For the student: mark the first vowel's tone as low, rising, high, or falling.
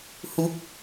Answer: rising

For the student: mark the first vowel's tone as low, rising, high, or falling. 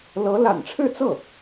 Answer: rising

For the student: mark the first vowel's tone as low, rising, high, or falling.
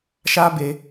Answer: high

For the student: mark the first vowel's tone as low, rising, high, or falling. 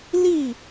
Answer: falling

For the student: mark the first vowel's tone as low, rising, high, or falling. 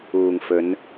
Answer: low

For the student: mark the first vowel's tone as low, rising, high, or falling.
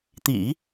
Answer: low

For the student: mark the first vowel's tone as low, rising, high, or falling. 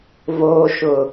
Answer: low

